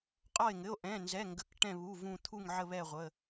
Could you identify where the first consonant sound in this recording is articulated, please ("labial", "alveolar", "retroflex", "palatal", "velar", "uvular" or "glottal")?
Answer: uvular